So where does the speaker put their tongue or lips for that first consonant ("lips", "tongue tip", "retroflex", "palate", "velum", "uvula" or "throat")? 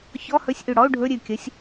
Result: palate